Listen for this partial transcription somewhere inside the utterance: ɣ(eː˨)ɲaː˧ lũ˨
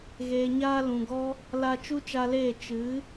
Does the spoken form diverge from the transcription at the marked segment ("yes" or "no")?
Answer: no